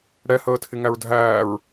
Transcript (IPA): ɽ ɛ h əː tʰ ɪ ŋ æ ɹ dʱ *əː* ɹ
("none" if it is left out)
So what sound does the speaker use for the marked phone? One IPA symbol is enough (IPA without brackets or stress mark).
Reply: æː